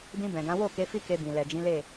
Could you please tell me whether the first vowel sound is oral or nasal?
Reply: nasal